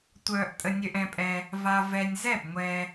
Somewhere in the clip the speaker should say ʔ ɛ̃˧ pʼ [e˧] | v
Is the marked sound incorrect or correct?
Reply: incorrect